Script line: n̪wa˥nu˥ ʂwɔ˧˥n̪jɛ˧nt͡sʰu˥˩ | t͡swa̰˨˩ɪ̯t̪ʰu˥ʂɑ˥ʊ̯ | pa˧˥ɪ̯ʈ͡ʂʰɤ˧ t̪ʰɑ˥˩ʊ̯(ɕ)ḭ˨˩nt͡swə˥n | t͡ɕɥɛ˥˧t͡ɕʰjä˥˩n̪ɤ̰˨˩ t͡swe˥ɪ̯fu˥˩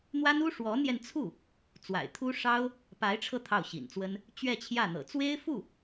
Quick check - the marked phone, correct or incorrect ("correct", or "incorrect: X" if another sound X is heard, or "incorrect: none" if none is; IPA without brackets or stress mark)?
correct